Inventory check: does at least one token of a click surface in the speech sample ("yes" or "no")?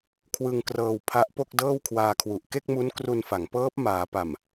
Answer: no